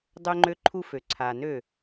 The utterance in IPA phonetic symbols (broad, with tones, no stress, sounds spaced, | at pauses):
dˤ ø˦ ŋ͡ǃ ø˦ ǃʰ u˦ f ø˨ ǀʰ a˨ n ø˦˨